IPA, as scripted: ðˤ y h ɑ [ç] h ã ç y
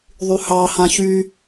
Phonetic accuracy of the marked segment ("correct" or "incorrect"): incorrect